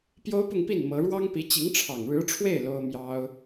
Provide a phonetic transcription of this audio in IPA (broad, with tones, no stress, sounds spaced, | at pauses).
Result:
p j o˥ ʊ̯ p ʊ˥˧ ŋ p i˥˩ n m ɤ˧˥ ɻ w ɑ˥ ŋ p i˧˥ t͡ɕ i˧˥ ŋ ʈ͡ʂʰ ɑ˨˩ ŋ ɻ ɻ̩˧˥ ʈ͡ʂʰ w e˥˩ ɪ̯ l o˥ ʊ̯ m j ɑ˥ ʊ̯